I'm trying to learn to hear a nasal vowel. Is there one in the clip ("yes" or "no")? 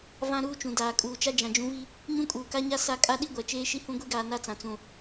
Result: yes